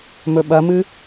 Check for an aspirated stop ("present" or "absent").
absent